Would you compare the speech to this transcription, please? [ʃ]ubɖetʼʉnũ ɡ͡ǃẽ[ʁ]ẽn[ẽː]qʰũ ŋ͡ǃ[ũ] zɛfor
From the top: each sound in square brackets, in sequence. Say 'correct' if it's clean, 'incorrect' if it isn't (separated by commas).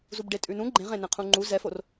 incorrect, correct, incorrect, incorrect